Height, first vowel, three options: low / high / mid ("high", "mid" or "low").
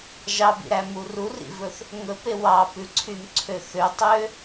low